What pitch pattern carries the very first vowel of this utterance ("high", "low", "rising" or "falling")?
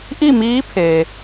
falling